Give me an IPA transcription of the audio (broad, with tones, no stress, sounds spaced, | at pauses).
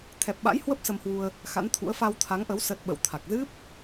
t̪ʰ ɛ˨˩ p̚ ɓ a̰˧˥ j h w ə˦˥ p̚ s ə˧ m h w u˧ ə̯ | x a̰˧˥ n t̪ʰ ṵ˧˥ ə̯ f a˧ w t̪ʰ a˨˦ ŋ ʔ ə˨˦ w s ə˦˥ t̚ ɓ ə̰˧˨ w t̪ʰ a˨˩ k̚ z ɨ˦˥ p̚